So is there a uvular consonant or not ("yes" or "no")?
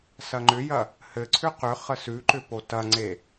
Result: yes